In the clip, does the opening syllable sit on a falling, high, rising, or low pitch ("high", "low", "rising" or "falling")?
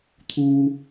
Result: high